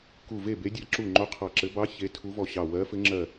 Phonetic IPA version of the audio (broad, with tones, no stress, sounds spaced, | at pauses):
k u˧˩ v e˥˨ b e˧˥ dʲ a˧˥ ǁ u˧˩ ŋ͡ǃ o˧˥ qʰ ɑ˧˩ ǁ ɘ˧˥ b ɑ˧˥ ç e˧˥ tʰ u˧˥ v ɔ˧˩ ɕ ɑ˧˩ w ɜ˧˥ f ɘ˧˥ ŋ͡ǁ ɜ˧˩